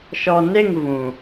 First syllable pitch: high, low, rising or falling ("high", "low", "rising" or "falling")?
low